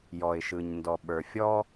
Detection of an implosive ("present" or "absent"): present